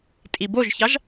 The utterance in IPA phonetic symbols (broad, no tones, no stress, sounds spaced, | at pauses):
tʼ i b o ʒ ç ɑ ʒ